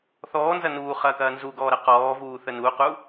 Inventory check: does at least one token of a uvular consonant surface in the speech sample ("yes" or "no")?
yes